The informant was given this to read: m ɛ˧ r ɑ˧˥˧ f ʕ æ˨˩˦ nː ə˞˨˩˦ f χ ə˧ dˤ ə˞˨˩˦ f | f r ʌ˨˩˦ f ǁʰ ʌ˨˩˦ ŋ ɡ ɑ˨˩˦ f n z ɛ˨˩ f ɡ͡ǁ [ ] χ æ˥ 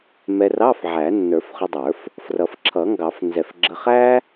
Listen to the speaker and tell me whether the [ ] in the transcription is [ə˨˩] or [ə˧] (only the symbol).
ə˧